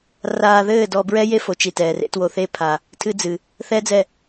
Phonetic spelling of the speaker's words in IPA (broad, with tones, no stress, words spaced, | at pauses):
raː˧ðɘː˦˨ dɔ˧bɹɛ˦ je˦fo˨t͡ʃi˨ tɛː˨rḛ˦two˧ θe˧pʰa˨ | tʰɨ˦d͡zɨ˨ | θɛ˦d͡zɛ˦˨